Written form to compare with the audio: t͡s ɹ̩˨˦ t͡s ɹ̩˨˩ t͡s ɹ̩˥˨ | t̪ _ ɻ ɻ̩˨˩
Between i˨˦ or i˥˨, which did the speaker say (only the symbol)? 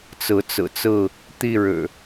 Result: i˥˨